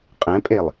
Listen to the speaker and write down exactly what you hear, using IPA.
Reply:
qʼ ɛ̃ pʼ e lˠ

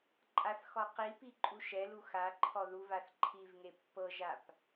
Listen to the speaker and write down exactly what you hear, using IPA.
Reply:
ǃʼ a θ x ɔ q i p i ǃʼ u ʃ ɛ l u x a ǃʰ ɔ ð u v a θ ǃʰ i v ŋ e pː ɤ ʒ a p

